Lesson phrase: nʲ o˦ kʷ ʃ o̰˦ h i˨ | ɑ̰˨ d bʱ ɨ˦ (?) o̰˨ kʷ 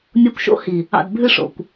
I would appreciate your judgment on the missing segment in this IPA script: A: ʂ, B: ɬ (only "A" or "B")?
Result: A